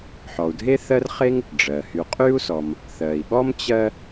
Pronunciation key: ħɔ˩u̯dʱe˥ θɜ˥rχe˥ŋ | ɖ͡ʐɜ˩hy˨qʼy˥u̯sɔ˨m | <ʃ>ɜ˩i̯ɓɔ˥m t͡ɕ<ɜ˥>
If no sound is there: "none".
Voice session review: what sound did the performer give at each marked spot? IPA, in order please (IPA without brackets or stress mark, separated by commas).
θ, ɜ˦